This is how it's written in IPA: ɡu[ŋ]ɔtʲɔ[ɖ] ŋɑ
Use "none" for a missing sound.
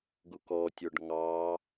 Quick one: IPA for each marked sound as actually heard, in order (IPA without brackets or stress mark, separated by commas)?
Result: k, ɖ